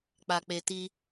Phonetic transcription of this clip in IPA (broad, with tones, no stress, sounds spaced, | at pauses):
k͡p a˧ k͡p e˧ t i˦